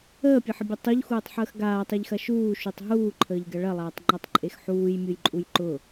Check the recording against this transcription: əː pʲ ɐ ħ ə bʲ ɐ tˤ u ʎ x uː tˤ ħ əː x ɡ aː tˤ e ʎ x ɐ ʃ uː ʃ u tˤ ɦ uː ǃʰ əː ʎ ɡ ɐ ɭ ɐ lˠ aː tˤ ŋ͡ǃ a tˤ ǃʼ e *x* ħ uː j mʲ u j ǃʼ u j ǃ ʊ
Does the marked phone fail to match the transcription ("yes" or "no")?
no